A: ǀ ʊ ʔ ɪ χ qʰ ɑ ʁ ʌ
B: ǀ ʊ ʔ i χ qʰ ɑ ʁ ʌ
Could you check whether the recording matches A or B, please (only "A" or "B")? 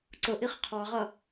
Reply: B